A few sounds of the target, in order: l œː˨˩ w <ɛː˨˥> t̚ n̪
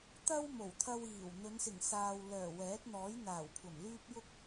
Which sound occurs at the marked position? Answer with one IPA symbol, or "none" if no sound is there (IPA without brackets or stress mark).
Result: ɛː˨˥